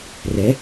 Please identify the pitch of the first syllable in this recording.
rising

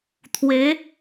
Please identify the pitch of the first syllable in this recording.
rising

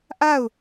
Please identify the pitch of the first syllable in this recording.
falling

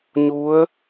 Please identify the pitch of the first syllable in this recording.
rising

